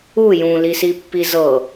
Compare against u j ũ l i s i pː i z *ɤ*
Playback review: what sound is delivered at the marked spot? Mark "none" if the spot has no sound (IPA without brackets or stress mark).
ɤ